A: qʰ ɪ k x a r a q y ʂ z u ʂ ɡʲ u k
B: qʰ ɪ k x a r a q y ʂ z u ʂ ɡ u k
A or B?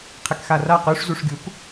A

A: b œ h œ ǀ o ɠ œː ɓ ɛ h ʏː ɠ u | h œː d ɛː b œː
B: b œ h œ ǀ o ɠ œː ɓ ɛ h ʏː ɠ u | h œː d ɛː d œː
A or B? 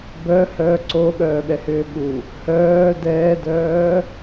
B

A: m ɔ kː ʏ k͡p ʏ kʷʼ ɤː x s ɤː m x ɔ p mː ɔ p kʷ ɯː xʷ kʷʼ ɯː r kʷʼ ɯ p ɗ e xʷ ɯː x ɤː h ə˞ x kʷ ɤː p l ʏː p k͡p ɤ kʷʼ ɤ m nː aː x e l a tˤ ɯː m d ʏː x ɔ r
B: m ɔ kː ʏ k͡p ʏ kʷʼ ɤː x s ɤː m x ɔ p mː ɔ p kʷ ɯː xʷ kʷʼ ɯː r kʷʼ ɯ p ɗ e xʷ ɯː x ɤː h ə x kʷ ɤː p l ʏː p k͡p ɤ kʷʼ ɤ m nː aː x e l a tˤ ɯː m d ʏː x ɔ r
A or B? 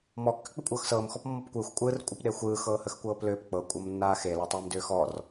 B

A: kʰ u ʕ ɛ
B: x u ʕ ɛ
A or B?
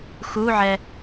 B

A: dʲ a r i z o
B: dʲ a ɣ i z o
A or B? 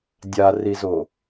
A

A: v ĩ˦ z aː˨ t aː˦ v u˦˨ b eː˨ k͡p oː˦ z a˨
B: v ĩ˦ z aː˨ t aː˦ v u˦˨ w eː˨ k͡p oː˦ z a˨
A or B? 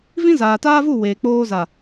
B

